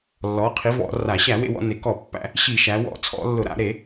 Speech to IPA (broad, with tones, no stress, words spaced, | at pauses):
lːɔ˩˧qʰi˩˧ vɔ̰˧˩˧ra˧˩˧ ɕæ˧˩˧wḛ˩˧wɔ̰˩˧ ne˩˧kɔ˧˩˧pːæ̰˧˩˧ | ɕi˧˩˧ʃæ˩˧wɔ̰˧˩˧ t͡sʰɔ̰˧˩˧lːʊ˧˩˧ ɾa̰˧˩˧ɾe˧˩˧